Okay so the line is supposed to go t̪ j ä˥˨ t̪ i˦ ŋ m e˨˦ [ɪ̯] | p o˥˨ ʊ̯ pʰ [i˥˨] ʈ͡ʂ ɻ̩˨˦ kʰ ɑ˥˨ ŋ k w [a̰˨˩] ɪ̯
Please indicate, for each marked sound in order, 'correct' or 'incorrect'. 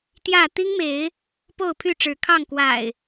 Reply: correct, incorrect, correct

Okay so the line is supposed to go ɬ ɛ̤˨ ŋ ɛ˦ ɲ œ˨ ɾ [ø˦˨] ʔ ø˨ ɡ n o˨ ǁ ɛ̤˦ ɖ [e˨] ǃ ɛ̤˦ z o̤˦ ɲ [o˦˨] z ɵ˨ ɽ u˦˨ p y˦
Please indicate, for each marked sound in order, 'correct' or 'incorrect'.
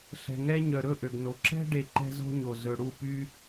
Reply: incorrect, correct, incorrect

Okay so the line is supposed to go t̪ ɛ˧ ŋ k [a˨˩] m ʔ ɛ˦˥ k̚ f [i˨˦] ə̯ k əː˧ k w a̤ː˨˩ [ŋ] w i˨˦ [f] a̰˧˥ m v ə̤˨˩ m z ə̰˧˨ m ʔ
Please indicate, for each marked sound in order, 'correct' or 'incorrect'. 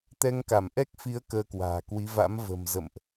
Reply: incorrect, correct, incorrect, incorrect

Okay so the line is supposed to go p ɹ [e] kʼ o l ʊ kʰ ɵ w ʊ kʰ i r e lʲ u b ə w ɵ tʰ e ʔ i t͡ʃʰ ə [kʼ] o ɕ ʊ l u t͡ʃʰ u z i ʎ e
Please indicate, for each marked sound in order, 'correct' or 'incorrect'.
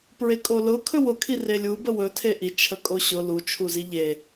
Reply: correct, correct

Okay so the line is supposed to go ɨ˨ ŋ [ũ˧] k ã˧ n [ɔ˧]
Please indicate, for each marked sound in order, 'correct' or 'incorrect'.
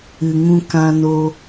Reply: correct, incorrect

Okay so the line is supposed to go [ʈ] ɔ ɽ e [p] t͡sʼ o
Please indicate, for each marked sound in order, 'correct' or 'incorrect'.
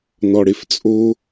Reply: incorrect, incorrect

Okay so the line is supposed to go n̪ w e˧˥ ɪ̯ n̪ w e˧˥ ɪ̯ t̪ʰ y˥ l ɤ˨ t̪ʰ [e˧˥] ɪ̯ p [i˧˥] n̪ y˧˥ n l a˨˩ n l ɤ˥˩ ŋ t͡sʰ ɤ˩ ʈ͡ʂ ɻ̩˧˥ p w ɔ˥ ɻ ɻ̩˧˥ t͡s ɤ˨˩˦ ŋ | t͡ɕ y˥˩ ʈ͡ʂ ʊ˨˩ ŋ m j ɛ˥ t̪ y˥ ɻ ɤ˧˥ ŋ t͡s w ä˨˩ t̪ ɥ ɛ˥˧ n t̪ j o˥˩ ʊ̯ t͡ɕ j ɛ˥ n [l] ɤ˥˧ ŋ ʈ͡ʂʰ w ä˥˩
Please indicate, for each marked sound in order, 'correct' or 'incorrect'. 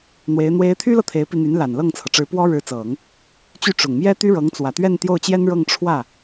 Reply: correct, incorrect, incorrect

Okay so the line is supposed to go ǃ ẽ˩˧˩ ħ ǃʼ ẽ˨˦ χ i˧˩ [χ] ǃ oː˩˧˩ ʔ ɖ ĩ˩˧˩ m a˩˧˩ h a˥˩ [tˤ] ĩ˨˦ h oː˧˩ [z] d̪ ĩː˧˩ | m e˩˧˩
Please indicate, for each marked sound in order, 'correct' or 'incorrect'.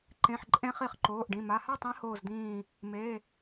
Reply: correct, correct, correct

